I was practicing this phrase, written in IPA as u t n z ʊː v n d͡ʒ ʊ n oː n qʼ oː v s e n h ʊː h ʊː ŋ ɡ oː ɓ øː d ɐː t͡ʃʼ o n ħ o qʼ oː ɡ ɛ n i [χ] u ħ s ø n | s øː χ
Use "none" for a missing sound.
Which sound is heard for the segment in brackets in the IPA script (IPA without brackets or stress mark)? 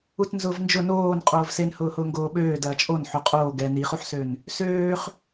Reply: χ